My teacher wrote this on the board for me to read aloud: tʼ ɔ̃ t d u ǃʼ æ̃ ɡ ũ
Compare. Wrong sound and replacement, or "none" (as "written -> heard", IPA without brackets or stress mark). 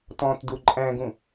tʼ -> t